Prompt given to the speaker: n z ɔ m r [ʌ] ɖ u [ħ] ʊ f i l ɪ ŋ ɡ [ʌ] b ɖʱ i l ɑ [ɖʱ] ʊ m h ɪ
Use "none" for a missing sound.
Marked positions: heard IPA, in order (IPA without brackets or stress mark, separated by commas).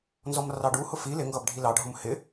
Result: ɑ, h, ʌ, ɖʱ